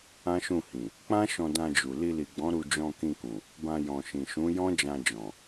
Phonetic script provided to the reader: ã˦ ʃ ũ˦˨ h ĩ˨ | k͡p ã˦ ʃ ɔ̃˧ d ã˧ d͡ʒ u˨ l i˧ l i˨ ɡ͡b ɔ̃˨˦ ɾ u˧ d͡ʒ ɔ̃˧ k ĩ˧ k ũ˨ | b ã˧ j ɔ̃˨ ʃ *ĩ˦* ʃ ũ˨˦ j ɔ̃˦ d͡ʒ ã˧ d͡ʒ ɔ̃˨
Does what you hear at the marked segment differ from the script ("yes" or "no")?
yes